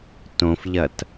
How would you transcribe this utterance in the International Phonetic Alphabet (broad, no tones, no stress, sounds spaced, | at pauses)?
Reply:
t õ f ʎ ɐ t